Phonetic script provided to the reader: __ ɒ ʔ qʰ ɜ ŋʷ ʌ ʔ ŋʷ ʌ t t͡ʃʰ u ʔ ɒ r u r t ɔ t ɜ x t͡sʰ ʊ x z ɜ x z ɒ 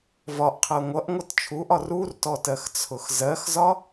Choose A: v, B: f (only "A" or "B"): A